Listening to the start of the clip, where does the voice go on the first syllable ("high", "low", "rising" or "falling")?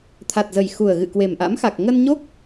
low